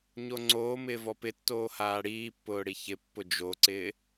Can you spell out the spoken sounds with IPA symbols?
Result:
ɲ o ŋ͡ǀ oː m ɪː v ɔ p ɪ tː oː h aː ɽ iː pː ʊː ɽ i ç ɪ pː ʊ d͡ʒ o ǀ ɪː

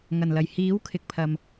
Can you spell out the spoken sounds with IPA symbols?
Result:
ŋ ɐ˨˩ n l ɐ˨˩ j h iː˨˥ w kʰ ɪ˨ k̚ pʰ ɐ˨ m

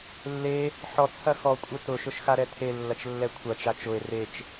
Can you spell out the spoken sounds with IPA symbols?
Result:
lː e | ħ ɔ t͡sʰ ɐ x ɔ kʷʼ ə t ʊ ʃ ʊ ʃ x a ɾ ɛ tʰ e lː ɐ t͡ʃ lː ɛ kʷʰ ɐ t͡ʃ a t͡ʃ ʊ e̯ r e t͡ʃ

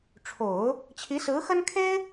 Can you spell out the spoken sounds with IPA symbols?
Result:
ʈ͡ʂʰ o˨˩˦ ʊ̯ | t͡ɕʰ i˧˥ s ɹ̩˧˥ x ə˥ n kʰ e˥ ɪ̯

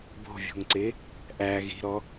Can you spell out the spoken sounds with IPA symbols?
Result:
b o̤ vʲ o̤ ŋ ǀ e | ʔ æ ɣ i̤ ɾ ɔ

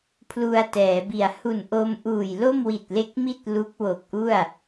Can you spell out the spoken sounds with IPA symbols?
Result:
pʰ l u˧ a̯ t ɛː˩˦ b i˨˩ a̯ h u˨˩ n ʔ o˧ m ʔ uː˨˩ j l o˥˩ m w i˨˩ t̚ l e˦˥ k̚ m i˥˩ t̚ l u˦˥ k̚ w o˨˩ k̚ ʔ u˥˩ a̯

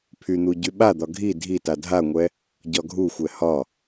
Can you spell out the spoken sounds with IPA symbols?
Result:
pʰ y n̪ u ɟ y ɓ a d̪ ɒ ɡʱ i dʱ i t a dʱ a ŋʷ ɛ | ɟ ɒ ɡʱ u xʷ ɛ h ɒ

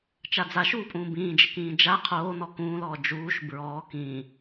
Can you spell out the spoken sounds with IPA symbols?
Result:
t͡ʃ a d͡z a ʃ uː pʼ ũː b ĩː d͡ʒ ɪ k ĩː d͡ʒ a qʰ oː n ɔ k ũː l ɔː d͡ʒ uː ʃ b ɹ ɔː k ĩː

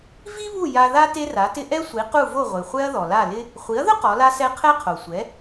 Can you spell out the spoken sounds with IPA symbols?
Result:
v i˥ β u˥˩ j a˧ ð a˥ t e˥ r a˩˥ t ɪ˥ ʔ ɛ˥ sʷ i˩˥ q u˥˩ v o˥˩ ʁʷ e˩ χʷ ɛ˥ ɐ̯ ð ɔ˩ l a˥˩ l ɪ˥ | χʷ i˩˥ ɐ̯ ð ʊ˥ q ɔ˩˥ l a˥ s ɛ˥ qʰ ɛ˥ qʰ o˩ sʷ ɛ˩˥

